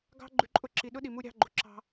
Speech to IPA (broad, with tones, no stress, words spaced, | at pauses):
ɡɑ̤˦ ɡ͡ǃʉ˨ǃʼʊ˦ǁi˨ ɗʊ˦ ɗi˨mu˦ ɾʲɑ̤˦ɡ͡ǃʊ˨ ǁɑ̤˦